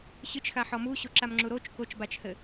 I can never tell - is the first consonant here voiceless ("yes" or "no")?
yes